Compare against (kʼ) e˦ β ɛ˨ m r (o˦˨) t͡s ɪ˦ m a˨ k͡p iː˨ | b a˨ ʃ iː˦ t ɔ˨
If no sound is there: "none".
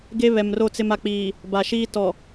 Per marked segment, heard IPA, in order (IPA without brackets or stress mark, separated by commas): ɡ, o˦˨